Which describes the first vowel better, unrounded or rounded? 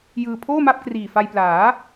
unrounded